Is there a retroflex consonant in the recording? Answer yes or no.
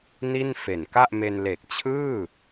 no